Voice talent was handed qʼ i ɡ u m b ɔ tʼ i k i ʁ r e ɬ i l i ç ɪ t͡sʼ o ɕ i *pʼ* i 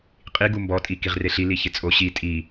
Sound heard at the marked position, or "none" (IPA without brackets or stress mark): tʼ